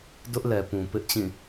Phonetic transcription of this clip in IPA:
dʊ˦ʔ lɛ˨pũ˨ pɪ˦ʔ t͡ɕĩ˦˨

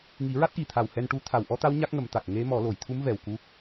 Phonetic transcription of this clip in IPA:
ŋi˨˩˦ɹa˦˥t̚ʔi˨˩t̪ʰa˨˩w hɛ˧nʈu˧˥ t̪ʰa˨˩wʔɔ˧˥t̪a˧˥w ɲa˦˥k̚ŋə˨˩˦mt̪a˨˩k̚ ŋe˧˥mɔ˨˩˦ lo˨˩˨jt̪ʰu˧˥mvɛ˨˩w ku˧˥

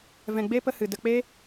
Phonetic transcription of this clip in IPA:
vɛ̃˨ɡ͡be˧ pə˧hɨ˨ də˧k͡pe˦

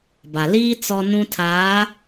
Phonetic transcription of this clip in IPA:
ba˨liː˦ t͡sɔ˦nũ˦tʰaː˨˦

